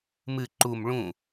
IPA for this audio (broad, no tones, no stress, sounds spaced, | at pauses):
m ɨ ǃ u m ɭ ũ